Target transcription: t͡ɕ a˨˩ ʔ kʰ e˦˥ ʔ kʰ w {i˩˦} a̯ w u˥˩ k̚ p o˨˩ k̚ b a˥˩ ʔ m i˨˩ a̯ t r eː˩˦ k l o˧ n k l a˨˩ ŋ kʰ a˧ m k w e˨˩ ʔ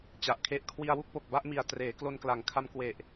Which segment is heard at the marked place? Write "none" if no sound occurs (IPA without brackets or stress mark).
i˧